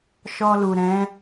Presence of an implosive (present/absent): absent